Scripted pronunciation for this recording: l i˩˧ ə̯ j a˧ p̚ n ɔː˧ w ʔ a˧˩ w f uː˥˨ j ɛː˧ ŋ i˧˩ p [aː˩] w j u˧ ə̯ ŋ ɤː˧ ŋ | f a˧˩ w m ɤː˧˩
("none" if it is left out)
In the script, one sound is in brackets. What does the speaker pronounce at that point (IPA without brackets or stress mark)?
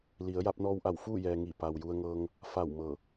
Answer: a˩